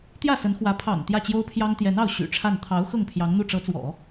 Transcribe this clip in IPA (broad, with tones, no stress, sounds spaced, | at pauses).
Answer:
t̪ j ä˥˩ s ə˧˥ n x w ä˧˥ pʰ ɑ̰˨˩ ŋ t̪ j ä˥˩ t͡ɕ j o˥ ʊ̯ pʰ j ɑ˥ ŋ t̪ j ɛ˧˥ n ɑ˥˩ ʊ̯ ɕ y̰˨˩ ʈ͡ʂʰ a˥˩ n t̪ʰ ɑ˧˥ ʊ̯ x ɤ˥˩ ŋ pʰ j ɑ˧˥ ŋ n̪ u˥˩ ʈ͡ʂ ɤ˧˥ t͡s w ɔ̰˨˩˦